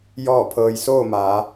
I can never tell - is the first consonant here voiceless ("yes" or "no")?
no